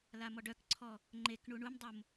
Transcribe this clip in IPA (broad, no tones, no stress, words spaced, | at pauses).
lamɔɖœkǀʰɔ | ŋ͡ǃek ɳuɳumdˤom